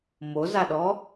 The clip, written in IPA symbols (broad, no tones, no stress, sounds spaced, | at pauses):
m o z a ɗ ɔ